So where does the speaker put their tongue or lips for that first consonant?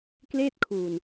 velum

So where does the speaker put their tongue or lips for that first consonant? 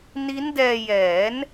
tongue tip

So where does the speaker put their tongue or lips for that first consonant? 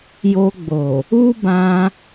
palate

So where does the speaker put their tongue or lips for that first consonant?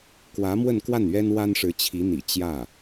velum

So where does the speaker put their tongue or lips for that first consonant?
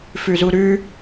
lips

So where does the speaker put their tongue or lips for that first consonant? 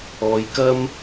palate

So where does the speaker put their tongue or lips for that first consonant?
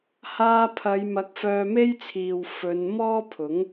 throat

